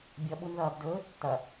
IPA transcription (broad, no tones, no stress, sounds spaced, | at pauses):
bʲ ɐ ɓ u n ð ɐː b d ɵː tː ɐ